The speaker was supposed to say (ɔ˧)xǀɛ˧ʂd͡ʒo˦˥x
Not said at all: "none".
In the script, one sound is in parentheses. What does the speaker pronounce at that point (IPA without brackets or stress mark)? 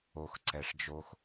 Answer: o˧